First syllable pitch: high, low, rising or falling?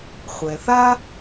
low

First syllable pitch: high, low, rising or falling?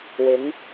rising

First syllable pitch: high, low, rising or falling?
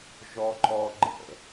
high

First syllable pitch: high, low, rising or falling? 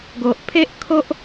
low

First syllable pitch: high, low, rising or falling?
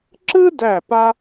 high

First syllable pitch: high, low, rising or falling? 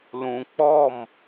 low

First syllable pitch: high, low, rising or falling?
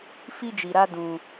high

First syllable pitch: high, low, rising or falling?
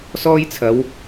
high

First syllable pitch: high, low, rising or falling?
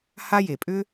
high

